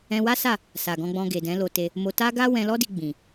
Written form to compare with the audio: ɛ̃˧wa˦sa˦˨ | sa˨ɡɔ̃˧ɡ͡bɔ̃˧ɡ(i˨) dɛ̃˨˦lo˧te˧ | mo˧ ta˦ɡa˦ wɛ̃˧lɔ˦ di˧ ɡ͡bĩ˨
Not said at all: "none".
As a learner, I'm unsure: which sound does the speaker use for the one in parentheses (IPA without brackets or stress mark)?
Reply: e˨